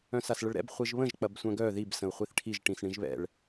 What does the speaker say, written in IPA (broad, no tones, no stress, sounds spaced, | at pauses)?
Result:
œ̃ s a s ɭ ə ɭ ɾ ɛ̰ b χʷ i ʒ β ə̃ ʒ k͡p ɐ b sʷ œ̃ ɡ œ ð i b s ə̃ u̯ χʷ i θ ʈʰ i ʒ ʈ ĩ s ɳ ĩ ʒ β ɛ̰ ɭ